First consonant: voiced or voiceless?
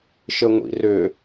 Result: voiceless